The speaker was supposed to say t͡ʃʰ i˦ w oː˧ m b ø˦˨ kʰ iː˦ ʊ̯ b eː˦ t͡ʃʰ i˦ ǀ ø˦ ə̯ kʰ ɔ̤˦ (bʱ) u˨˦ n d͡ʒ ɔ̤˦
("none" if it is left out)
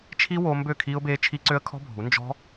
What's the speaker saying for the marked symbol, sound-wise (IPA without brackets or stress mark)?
bʱ